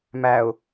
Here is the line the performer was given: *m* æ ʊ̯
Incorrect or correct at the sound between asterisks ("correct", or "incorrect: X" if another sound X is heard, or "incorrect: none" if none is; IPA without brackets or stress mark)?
correct